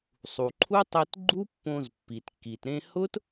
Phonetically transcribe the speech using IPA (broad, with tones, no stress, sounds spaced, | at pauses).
sˤ u˨ ǃʰ u˦ tˤ e˧ t ɡ͡ǃ u˦ pː õ˧ z pː i˨ t kː i˨ t ɾ ẽ˧ h ʊ˦ t